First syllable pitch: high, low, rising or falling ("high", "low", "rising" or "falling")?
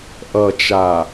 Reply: low